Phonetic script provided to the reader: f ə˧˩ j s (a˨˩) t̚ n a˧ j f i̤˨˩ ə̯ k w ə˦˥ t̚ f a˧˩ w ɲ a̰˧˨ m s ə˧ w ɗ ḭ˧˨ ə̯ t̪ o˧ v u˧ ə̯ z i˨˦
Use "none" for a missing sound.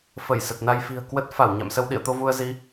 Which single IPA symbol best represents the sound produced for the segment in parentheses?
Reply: ə˨˩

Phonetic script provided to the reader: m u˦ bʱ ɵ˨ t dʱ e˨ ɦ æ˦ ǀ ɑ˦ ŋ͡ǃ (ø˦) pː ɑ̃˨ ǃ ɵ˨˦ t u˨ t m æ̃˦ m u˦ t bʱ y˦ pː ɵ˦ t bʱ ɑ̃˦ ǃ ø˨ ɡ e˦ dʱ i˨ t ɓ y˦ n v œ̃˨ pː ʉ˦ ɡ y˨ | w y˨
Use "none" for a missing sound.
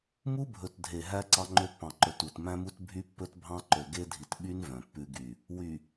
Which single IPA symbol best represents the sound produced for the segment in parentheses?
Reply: ø˦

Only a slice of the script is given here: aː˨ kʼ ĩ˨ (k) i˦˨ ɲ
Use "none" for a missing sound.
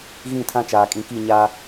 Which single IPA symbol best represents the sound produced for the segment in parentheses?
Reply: k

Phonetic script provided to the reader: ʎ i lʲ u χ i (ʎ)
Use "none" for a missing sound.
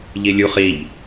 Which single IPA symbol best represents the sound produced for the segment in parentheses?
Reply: ʎ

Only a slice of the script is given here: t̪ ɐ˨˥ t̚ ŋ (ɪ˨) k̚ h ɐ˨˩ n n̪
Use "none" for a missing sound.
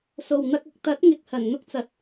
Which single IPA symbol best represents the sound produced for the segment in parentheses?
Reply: ɪ˨˥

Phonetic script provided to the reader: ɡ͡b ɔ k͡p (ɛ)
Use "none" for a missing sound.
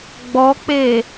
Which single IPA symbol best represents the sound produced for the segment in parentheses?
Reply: e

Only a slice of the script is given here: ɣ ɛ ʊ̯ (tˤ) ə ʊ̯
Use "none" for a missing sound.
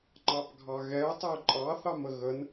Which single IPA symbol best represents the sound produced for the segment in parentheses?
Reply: tˤ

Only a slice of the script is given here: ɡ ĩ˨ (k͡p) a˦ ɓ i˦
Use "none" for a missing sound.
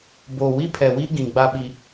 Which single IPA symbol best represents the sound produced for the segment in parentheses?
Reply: ɡ͡b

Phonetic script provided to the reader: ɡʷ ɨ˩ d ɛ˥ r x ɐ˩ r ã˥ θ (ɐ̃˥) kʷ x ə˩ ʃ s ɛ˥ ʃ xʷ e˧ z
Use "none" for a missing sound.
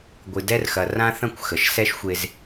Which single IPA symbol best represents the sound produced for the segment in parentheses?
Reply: ɐ̃˥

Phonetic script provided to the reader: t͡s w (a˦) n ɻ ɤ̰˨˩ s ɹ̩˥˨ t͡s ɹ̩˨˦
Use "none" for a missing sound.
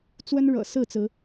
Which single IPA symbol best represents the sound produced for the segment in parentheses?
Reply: ə˦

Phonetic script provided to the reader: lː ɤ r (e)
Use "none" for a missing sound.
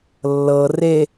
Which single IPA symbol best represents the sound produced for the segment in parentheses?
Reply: e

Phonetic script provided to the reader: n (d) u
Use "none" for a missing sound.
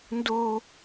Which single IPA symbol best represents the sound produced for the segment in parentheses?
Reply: d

